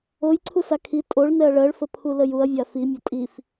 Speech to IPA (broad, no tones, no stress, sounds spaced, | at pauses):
o j ǀʰ u s a kʰ i tʼ o ɭ n ɛ ɐ̯ ɭ ɜ ɭ f ə pʰ u l ə j u ɐ̯ vʲ a f i mʲ ə tʼ i f